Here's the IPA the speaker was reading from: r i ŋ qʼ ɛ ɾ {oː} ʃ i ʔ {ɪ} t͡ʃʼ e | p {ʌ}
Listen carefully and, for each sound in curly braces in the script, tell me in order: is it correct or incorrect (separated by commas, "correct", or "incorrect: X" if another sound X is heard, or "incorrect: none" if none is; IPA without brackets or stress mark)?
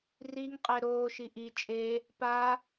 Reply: correct, incorrect: i, incorrect: a